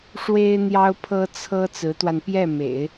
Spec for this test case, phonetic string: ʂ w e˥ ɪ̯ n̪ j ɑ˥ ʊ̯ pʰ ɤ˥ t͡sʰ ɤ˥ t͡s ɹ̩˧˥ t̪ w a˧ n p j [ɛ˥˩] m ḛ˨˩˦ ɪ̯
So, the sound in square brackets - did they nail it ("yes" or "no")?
yes